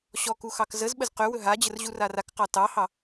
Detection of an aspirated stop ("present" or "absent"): absent